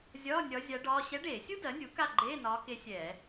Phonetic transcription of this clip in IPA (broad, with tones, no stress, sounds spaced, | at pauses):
zʲ ɒː˧˥˧ nʲ ɒ˧˥ zʲ a˧˥ ɖ ɒː˧˥˧ ɕ ɛ˧˥ ɖ eː˧˩˧ sʲ u˥ d ɜ˩˥ nʲ u˩˥ k a˦˨ ɡ͡ǃ eː˧˥˧ n ɒː˧˥ k e˧˥ sʲ ɛː˧˩˧